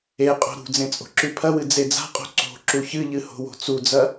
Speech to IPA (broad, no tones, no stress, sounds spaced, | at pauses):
e qʼ o̤ ɾ ṳ d͡z ẽ t͡sʼ o̤ ǁ ʉ pʰ ɐ w ɨ d͡z e d͡z a̤ qʼ o̤ ǀ o̤ ǁ u ç ɨ ʎ ɨ h o̤ w o̤ t͡s u d͡z ɐ